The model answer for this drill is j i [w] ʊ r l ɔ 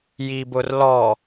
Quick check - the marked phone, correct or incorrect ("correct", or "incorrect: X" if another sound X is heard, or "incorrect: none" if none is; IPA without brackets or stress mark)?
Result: incorrect: b